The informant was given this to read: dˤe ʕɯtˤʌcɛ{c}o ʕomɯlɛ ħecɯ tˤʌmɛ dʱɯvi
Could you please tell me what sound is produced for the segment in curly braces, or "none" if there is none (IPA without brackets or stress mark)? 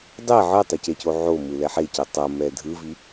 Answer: c